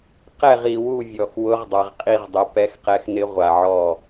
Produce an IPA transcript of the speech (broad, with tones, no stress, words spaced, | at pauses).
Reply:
qɛ˥˨ʁ i˨wu˥˨vʲɔ˨x wʊ˧˥ʁdˤa˨ʁqʼi˥˨ʁ dˤɪ˧˥ pɛ˧˥xqɛ˧˥xnɪ˧˥ ʁʷa˨ʕɔ˥˨